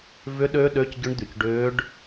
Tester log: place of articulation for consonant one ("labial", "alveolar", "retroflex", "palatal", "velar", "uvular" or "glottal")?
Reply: labial